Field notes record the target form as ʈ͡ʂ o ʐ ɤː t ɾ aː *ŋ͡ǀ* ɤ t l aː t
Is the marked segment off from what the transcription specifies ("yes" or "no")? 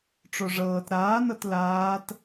yes